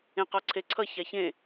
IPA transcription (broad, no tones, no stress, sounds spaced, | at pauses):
ẽ q ɒ ǀʰ e ǀʰ ʌ ç a ç ẽ